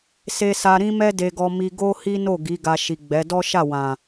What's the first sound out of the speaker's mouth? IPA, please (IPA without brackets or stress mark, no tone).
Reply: s